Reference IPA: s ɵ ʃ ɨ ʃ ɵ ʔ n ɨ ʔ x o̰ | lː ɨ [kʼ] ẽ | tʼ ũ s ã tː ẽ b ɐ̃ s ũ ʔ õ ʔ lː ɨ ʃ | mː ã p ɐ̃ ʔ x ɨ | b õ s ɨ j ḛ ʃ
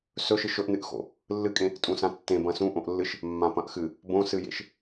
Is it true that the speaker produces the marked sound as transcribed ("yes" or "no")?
yes